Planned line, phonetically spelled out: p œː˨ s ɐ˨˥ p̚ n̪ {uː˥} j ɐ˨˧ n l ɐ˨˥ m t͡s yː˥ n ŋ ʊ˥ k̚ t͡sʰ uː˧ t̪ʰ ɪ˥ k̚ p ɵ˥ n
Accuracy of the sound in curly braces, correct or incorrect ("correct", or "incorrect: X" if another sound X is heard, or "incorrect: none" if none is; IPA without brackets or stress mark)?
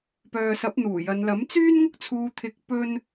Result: incorrect: uː˨˩